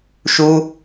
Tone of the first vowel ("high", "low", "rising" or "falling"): high